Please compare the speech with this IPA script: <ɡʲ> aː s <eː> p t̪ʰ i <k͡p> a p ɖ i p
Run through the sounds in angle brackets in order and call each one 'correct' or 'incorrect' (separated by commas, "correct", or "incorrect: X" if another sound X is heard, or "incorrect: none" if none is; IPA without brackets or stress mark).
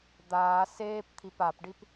incorrect: d̪, correct, incorrect: p